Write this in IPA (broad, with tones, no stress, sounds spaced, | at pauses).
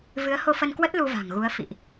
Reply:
v ɨ˨˦ ə̯ h o˧ f ə˧ n k w ə˦˥ t̚ l u˧ v a̤˨˩ ŋ ɣ u˨˦ ə̯ f ḭ˧˨ ʔ